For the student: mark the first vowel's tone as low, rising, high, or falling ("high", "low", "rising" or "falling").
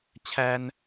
high